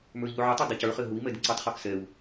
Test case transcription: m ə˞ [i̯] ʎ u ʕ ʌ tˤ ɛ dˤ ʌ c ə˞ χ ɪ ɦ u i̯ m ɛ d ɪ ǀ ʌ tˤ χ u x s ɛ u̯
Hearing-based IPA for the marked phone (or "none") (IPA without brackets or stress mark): i̯